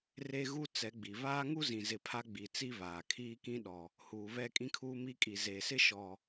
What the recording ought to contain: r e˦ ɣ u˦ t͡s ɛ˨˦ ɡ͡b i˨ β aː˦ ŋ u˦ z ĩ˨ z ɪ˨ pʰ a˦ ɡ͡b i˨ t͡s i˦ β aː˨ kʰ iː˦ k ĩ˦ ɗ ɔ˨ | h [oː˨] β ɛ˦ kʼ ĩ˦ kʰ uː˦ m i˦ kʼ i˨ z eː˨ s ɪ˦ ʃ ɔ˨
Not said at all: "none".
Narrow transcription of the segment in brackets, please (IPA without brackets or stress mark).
uː˨